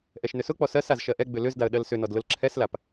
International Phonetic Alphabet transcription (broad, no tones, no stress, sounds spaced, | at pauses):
ʔ ɛ ʃ n ʏ s ʊ k͡p ɔ s ɜ s a z ʃ ɜ ʔ ɛ ɡ͡b ʏ l ʏ z d a ə̯ ɗ ɜ l s ʏ n ɔ d l ʊ l ǁʰ ɛ s l a p